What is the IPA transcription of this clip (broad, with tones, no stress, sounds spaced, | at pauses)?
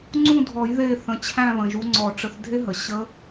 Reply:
ŋ͡ǀ ũ˦˨ dʱ ɔ˨˩˦ j ð e˦˨ θ ə̃˩˧˩ t͡ɕʰ æ̃˦˨ β ə̃˩ ʒ u˨˦ ŋ͡ǀ ɔ˨˩˦ ʈ͡ʂ ə˨˦ θ dʱ e˦˥ ɦ ə˩ ɕ ə˦˥